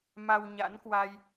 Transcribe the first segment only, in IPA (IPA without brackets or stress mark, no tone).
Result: m